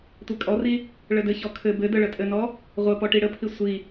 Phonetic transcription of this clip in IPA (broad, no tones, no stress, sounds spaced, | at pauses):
tʷ e kʼ ɔ r i | ɭ ə d ɘ ç ɔ kʰ ɘ b ɘ d ə ɭ ə tʼ ɘ n ɔ | ʁʷ ə p ɔ ʈ i ɽ ə pʰ i sʷ i